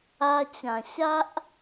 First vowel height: low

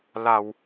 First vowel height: low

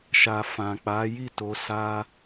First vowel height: low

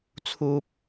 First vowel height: high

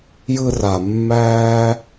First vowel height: high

